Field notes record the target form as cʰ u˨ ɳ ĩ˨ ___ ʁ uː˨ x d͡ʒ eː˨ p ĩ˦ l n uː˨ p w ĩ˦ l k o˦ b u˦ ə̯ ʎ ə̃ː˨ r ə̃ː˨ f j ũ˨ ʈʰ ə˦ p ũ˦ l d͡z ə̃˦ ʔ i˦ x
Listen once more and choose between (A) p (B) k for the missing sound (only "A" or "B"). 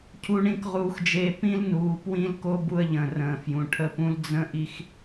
B